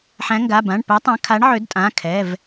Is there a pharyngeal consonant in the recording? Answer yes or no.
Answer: yes